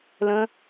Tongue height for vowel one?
mid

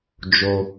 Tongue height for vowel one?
mid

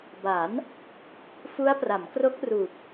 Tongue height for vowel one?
low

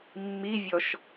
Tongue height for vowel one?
high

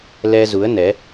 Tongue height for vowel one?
mid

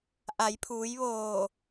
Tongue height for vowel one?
low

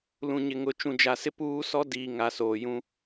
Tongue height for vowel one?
high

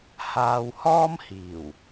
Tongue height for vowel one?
low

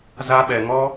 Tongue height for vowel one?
low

